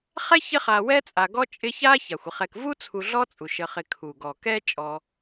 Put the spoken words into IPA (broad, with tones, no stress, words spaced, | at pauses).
χɛ˥çɪ˦χa˨wɛ˦ t͡sʼa˨ɡɔ˦ t͡ʃʼɪ˦ça˥ ça˩xʷɪ˨χɛ˨k vu˥t͡sʰu˨ɮɔ˦t͡sʼu˩ ʃə˨χɪ˨ kʰu˩ ɡɔ˩kɛ˥ t͡ʃʼɔ˨